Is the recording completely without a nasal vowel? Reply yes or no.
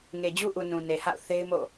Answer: no